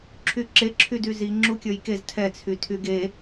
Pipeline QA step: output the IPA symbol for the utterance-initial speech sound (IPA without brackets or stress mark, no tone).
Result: ǁʰ